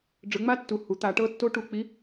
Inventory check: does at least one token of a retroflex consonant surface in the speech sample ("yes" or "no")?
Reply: yes